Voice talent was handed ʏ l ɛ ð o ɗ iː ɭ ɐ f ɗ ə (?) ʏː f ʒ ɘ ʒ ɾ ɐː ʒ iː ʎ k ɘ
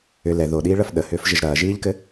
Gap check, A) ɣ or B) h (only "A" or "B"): B